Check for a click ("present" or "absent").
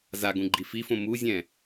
present